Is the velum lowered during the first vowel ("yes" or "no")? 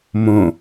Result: yes